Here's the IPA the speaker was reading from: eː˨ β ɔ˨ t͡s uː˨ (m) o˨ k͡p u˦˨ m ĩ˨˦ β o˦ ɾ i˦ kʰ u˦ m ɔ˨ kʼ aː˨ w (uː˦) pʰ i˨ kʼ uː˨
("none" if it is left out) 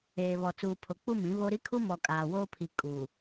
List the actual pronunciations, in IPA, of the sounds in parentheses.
pʰ, oː˦

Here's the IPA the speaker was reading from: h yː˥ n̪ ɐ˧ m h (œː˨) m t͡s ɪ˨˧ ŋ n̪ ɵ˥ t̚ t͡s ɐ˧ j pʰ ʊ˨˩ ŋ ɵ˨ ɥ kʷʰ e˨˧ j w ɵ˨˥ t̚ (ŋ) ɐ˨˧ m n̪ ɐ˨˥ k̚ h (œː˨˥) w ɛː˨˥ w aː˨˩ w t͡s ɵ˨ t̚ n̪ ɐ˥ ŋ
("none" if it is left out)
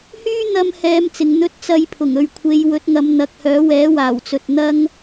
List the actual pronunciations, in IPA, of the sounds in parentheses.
ɛː˨, ŋ, œː˨˥

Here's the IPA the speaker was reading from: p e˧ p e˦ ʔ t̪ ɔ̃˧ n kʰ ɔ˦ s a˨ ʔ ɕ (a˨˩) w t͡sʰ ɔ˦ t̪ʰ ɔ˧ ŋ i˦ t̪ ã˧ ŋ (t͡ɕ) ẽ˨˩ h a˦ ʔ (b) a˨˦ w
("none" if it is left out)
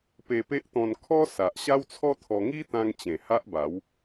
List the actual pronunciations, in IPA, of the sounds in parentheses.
a˦, t͡ɕ, b

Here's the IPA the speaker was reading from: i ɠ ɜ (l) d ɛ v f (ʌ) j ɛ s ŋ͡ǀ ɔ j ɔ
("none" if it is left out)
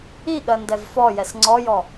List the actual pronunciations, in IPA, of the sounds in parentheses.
n, ɔ

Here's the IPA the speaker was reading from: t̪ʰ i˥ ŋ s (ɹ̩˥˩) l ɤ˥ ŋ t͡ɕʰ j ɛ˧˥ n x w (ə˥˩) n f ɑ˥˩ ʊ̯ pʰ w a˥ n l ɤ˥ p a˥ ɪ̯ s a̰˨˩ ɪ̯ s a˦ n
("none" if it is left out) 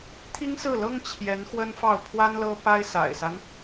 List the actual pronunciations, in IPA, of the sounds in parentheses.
ɹ̩˥˩, ə˥

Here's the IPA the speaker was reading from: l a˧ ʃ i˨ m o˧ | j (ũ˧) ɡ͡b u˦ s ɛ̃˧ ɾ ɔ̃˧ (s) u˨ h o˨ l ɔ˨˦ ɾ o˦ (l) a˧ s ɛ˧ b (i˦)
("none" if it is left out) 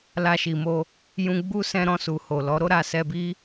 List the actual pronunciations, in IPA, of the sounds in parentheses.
ũ˧, s, ɾ, i˦

